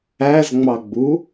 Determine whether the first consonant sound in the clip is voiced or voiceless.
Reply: voiced